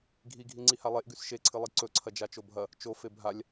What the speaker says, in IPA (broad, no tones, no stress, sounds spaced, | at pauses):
ɡʱ i ɡʱ i ŋ͡ǀ i h a lˠ e ʔ ɡ ʉ s ʃ e ǀʰ ɨ lˠ i ǀ ɵ ǀʰ ɐ d͡ʒ a t͡ʃ o bʱ ɐ | t͡ʃ o f e bʱ a lʲ